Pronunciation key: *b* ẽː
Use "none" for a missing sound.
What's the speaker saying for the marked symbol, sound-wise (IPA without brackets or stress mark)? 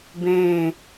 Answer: b